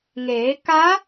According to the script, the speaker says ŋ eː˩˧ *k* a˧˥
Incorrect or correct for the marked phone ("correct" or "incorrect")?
correct